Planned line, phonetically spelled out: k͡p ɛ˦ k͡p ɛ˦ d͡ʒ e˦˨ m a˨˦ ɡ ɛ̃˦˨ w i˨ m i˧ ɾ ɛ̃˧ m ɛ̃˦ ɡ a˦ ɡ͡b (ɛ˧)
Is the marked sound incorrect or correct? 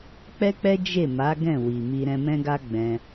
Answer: incorrect